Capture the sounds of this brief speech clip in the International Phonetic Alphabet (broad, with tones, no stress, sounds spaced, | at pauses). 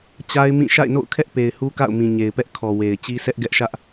t͡ɕ a˦ ɪ̯ m ĩ˦˨ ʃ a̰˦˨ ɪ̯ n o̰˦˨ ʊ̯ kʰ ɛ˦ ʔ p e˨ ɪ̯ h u˦ k a̰˦˨ ʊ̯ m ĩ˨ ɲ e˨ ɪ̯ p ɛ˦ ʔ kʰ ɔ˨ w e˨ ɪ̯ t͡ɕ i˦ sʰ ɛ˦ ʔ ɡ ɛ˦ ʔ ʃ ä˦ ʔ